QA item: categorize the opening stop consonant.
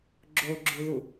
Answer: click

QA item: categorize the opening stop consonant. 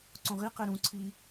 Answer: click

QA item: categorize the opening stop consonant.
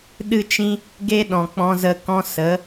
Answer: implosive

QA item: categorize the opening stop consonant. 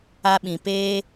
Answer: implosive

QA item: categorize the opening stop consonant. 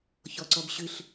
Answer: click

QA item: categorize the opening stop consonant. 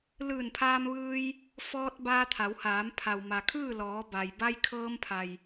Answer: aspirated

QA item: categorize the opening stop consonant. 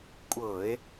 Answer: ejective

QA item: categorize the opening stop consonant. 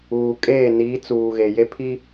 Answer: ejective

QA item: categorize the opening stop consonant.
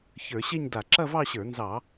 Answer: plain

